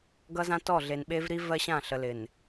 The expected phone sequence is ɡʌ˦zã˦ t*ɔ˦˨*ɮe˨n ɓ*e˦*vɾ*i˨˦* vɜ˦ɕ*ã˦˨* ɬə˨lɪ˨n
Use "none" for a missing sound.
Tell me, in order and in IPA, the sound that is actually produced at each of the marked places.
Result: ɔ˦˨, e˦, i˦, ã˦˨

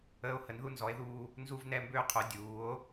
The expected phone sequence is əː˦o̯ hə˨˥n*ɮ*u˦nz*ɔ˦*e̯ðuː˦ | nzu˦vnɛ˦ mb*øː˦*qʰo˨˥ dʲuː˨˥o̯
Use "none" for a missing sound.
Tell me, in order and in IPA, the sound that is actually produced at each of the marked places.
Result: ð, ɔ˨˥, øː˦

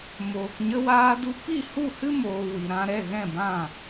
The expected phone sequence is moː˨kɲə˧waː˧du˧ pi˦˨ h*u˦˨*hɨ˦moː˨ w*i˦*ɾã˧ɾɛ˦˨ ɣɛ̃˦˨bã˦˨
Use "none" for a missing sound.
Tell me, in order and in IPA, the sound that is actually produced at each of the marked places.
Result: u˦˨, i˨

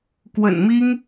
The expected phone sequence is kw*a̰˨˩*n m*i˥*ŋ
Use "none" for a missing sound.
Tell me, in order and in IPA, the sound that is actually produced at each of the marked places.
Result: ə̰˨˩, i˥

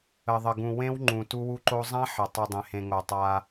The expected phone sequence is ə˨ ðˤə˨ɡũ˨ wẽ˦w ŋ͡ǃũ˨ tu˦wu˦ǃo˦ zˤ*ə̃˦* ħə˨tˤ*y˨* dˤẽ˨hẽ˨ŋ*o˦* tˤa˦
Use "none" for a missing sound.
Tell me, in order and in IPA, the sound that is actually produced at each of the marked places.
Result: ã˦, u˨, o˨

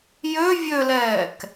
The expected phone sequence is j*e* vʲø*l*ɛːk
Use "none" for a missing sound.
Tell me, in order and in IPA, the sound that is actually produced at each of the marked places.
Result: ø, l

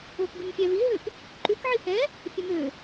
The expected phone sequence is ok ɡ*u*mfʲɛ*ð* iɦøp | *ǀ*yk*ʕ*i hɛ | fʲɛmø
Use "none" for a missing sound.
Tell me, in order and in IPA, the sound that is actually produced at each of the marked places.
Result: y, v, ǃ, ʕ

